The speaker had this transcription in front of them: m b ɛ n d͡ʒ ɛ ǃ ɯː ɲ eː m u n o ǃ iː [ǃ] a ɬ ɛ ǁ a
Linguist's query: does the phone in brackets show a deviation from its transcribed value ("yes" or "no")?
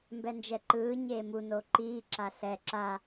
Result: yes